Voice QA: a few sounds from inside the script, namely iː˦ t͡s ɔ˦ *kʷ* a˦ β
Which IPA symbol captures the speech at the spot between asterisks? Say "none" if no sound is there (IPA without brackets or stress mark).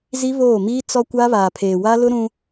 kʷ